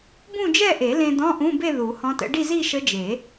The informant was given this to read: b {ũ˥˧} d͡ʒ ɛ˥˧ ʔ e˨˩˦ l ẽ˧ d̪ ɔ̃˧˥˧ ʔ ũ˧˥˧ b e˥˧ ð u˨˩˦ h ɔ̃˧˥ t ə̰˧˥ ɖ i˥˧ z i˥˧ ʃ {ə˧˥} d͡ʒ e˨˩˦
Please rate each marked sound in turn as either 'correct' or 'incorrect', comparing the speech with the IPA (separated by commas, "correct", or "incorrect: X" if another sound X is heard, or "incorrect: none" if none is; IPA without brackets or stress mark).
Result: correct, correct